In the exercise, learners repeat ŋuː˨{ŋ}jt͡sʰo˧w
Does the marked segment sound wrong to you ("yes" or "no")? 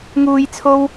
yes